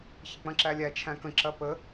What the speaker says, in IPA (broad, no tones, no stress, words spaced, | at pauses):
çɪk͡pɐ̃ǁælʲæ t͡ʃʰæ̃kə̃ ǁɐpə